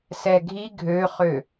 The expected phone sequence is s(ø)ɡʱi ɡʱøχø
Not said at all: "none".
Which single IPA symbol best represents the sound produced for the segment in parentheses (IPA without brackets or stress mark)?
ɛ